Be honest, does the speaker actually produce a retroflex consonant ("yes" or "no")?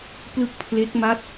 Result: no